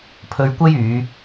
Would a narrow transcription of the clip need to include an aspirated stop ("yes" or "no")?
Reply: yes